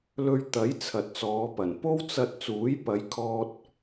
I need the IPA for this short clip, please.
l ɵ˧ ɥ t̪ ɐ˨˥ j t͡sʰ ɐ˨ t̚ t͡s ɔː˨˧ p ɐ˨˩ n p o˥ w t͡s ɐ˧ t̚ t͡s uː˨˥ j p ɐ˨˧ j kʰ ɔː˧ t̚

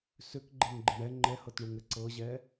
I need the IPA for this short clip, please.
s ʏ k ɡ͡ǃ e ŋ ɡ͡ǃ ɪ ɳ ɛ ŋ͡ǃ ɛ h ɤ t ɳ u ŋ ɘ ǀ ɤ ʑ ɛ

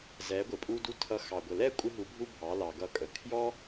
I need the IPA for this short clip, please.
z ɛ˨˦ ɡʷ ɪ˨ pʼ u˧ d u˧ tʰ ʌ˧ x ɑ˨ ɡʷ ə˨ l ɛ˦ kʷʼ ɪ˦ ɦ u˧ bʱ u˦ bʱ ɑ˨˦ l ɑ˨ ɡ ʌ˧ kʼ ə˨ kʰ j ɔ˦

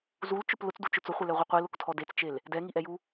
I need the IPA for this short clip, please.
z u l t͡ʃ ʊ p l ʊ t͡s d u t͡ʃ ʊ t͡s ʊ χʷ e l ɛ ʁʷ i qʷ i l ʊ k tʰ ɔ d e t͡s t͡ʃ e l | d ɛ ŋ i ʔ ɛ j u

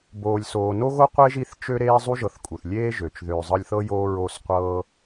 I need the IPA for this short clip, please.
b oː˨ lʲ s oː˨ n o˥ ɣ o˥ qʷ e˥ ʒ i˦ θ t͡ʃ ø˥ ɾ eː˥ zˤ u˥ ʒ ɤ˨ θ kʼ u˩ θ lʲ eː˦ ʒ ø˩ t͡ʃ ð øː˨ zˤ ɤ˦ lʲ θ ɤ˥ j oː˦ ɹ o˨ s qʷ ɤ˦

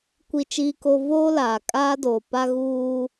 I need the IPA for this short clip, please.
kʷ i˦ t͡ʃ iː˦ k o˦ v oː˦ l aː˨ kʼ aː˦ d oː˨ p a˦ ɣ uː˦

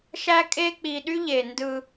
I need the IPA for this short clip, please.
ʃ æ˦ kʼ e˦ k͡p i˨ ɗ y˦ ʎ e˨ n d ɯ˦

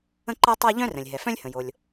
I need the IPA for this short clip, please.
ə̃˥ ǃ a˥ tˤ a˥ ʎ œ̃˥ r ə̃˩ lʲ ɦ ɛ˩ f œ̃˥ lʲ h ə̃˩ j o˩ lʲ

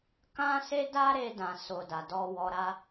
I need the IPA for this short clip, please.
k ã˦ s e˦ d a˦ ɾ e˦ d ã˧ s o˧ d a˨ d ɔ˧ w ɔ˧ ɾ a˦

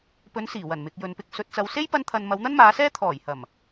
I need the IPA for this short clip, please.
p ɵ˨˧ n s iː˨˩ w ɐ˨˩ n m ɪ˨ k̚ j ɵ˨ n p ɪ˧ k̚ s ɵ˨ t̚ t͡s ɐ˨ w s e˥ j p ɐ˥ n t̪ʰ ɐ˧ n m ɐ˨˧ w n̪ ɐ˥ n m aː˨˧ s ɛː˥ t̪ʰ ɔː˨˩ j h ɐ˨˩ m

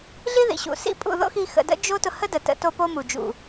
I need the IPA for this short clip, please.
ɮ i˦ ð ḭ˨ ɕ ṵ˨ s ḭ˦ pʼ ṵ˦˨ ð o̰˦ x i˧ x ə̰˨ d ə̰˦ d͡ʒ o˦ t ʊ˧ h ə˦ d ə˨ t ə̰˧ t o˧ p o˦ m u˨ d͡ʒ ṵ˨

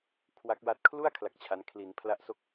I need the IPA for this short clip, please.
kʰ w a˦˥ k̚ w a˦˥ t̚ kʰ l u˥˩ a̯ kʰ l a˥˩ k̚ t͡ɕʰ a˦˥ n kʰ l i˩˦ n pʰ l a˦˥ ʔ s o˥˩ k̚

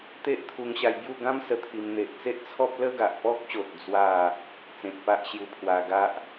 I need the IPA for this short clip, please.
t̪ e˦ ʔ t̪ʰ u˧ ŋ ɕ a˧ j b j u˥˧ ɡ ã˦ m s ə˧ t̪ʰ i˧ m n̪ e˨ ʔ t͡s e˦ ʔ t͡sʰ ɔ˦ p̚ l ə˦ ɡ a˨ ʔ p ɔ˦ k̚ ɕ o˨ t̚ d͡z w a˥˧ | t͡s ẽ˨ t̚ p a˦ ʔ ɕ j u˧ pʰ w a˧ ɡ a˦ ʔ

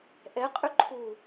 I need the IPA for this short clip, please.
ʔ ɛ qʼ ʏ ǃʰ u

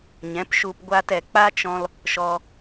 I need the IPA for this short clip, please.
ɲ ɛ̃˨˦ p ʃ u˧ p ɡʷ aː˧ t ɛ˨ k͡p a˦ t͡ʃ ɔ̃˧ l | ʃ ɔ˧

